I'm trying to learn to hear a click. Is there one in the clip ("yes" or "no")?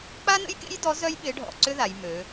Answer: yes